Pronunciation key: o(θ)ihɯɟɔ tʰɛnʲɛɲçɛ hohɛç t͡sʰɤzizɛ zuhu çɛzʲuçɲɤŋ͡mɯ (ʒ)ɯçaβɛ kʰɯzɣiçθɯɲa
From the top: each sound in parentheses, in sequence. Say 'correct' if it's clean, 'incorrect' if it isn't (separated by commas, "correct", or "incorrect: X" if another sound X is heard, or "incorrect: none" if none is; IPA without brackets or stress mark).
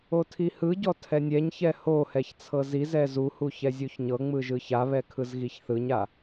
incorrect: tʰ, correct